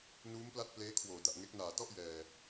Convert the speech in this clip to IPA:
nuː˦˥mpla˥˩t̚pleː˦˥ kʰwoː˨˩da˨˩ʔŋe˦˥k̚ naː˨˩tɔ˥˩ʔ jɛː˨˩

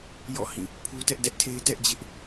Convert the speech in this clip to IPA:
jɔ̰˦˨hĩ˦˨ | pʰu˦tɛ˦ʔ dɛ˦ʔtʰe˦ɪ̯ tɛ˦ʔd͡ʑɪ˦ʔ

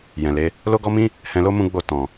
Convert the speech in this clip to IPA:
jɛ̃˨le˨˦ | lo˦ɡɔ˦mĩ˦ | hɛ̃˧lo˦ mũ˦ɡ͡bo˦˨ tɔ̃˨

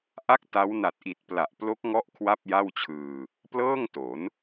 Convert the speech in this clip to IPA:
ʔa˦˥k̚ ta˦˥w na˨˩t̚ʔi˨˩t̚ pla˨˩ʔplo˦˥k̚ŋɔ˦˥ʔ kʰwa˥˩p̚ja˥˩wt͡ɕʰɯː˧ | plɤː˥˩ŋto˩˦n

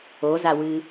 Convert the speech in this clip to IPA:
ozawɨ

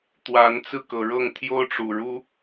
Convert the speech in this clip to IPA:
t̪wa˨˦nt͡sɹ̩˥˨kɤ˨˩ɻɤ˥˨ŋ t̪ʰjo˦ʊ̯ʈ͡ʂu˨˩ɻu˦

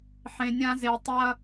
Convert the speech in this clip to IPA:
ħẽ˨nʲã˦ ze˨ tˤɐ˦

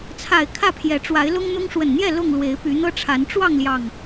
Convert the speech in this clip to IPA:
t͡sʰa˨˩ɪ̯ kʰä˥˨pʰjɛ˨˦ ʈ͡ʂwa˨˦ɪ̯lʊ˦ŋn̪ʊ˦ŋ ʂwə˨˩nn̪jɛ˥˨ lʊ˥˨ŋ lwe˨˦ɪ̯py˨˦n̪ɤ˦ʈ͡ʂʰa˨˦n ʈ͡ʂwɑ˥˨ŋljɑ˨˩ŋ

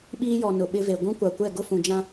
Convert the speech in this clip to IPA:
ɓiː˦jɔ˨ nʊ˨ɓɪ˦ve˨ ɡʷũ˦kʷa˨kʷɛ˦˨ ɡʊ˦fũ˨d͡ʒã˦

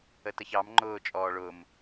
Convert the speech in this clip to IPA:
ətəçɑm ŋ͡ǃʊː t͡ʃʼɔːɭʊm

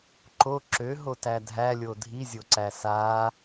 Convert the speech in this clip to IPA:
ǃo ǁøɦotæ dʱælʲo dʱizʲoǀæ saː

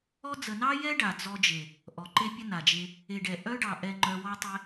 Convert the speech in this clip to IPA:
ɔ˦ d͡zə˨nɑ˧jɛ˧ ɖa˨d͡zɔ˧d͡ʒe˨ | ʔɔ˨ǃe˦pʲə˦ na˨d͡ʒe˧ | e˨ɖɛ˨ ʔœ˦ɖɑ˨ ʔɛ˧ŋ͡ǃœ˧wɔ˦tˤɛ˦

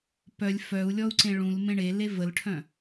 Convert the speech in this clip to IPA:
pœlʲ fœu̯lʲɔu̯ǀẽ ɭũlmẽ ɳele vəlʈʰœ̃

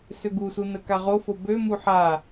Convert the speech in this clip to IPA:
søɡusu nəkaʁofo bømu ħa

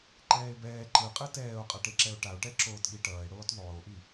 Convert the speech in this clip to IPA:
ǃɛːe̯bɛː ǃɯqʼɯ tɛːo̯qʼʌʈeǁɛo̯ ʈao̯ʈɛ ǁoːtɠiʈʌːe̯ɽoːt ðˤoːʔi

